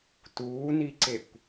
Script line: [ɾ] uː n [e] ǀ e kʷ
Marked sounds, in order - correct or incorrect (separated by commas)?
incorrect, incorrect